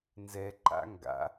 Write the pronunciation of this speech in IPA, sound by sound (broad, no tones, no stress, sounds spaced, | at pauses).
n z ɛ ǃ a̰ ŋ ɡ a̰